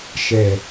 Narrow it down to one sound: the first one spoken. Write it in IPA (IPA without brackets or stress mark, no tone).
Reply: ʃ